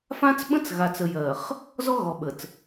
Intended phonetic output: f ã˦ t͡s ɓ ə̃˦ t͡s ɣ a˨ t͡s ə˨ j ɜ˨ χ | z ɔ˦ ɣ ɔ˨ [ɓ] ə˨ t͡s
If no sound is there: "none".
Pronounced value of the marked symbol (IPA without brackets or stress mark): ɓ